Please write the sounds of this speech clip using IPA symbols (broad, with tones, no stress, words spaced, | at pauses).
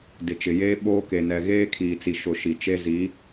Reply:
dɪ˨t͡ʃɪ˨jeː˦ ɓoː˦ke˨nɛ˨ ɣeː˦kʰiː˨t͡si˨ʃʊ˨ ʃi˨t͡ʃe˦ zi˨˦